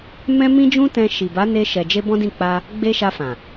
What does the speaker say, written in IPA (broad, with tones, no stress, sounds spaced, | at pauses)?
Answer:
m ɛ̃˦ m ĩ˦ d͡ʒ ũ˦ t ɛ̃˧ ʃ i˨ b a˨˦ n e˧ ʃ ɛ˨ d͡ʒ e˧ b ɔ̃˦ d ĩ˦˨ k͡p a˧ | ɡ͡b e˧ ʃ a˧ f ã˨